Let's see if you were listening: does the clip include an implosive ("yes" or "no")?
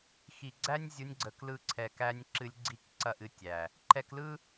no